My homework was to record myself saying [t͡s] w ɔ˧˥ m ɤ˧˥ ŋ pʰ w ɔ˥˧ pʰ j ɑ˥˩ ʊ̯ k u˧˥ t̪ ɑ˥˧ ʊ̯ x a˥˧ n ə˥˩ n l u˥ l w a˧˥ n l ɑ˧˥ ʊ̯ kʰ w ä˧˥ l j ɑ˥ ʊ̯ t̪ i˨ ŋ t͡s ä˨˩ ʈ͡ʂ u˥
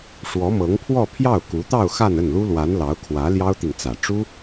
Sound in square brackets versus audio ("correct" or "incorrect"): incorrect